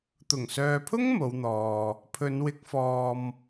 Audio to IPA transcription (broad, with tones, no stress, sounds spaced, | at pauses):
t̪ ʊ˨˩ ŋ s œː˨ pʰ ʊ˥ ŋ m o˨˧ w n̪ ɔː˨ | pʰ ɵ˨˧ n w ɪ˨˥ k̚ f ɔː˨ m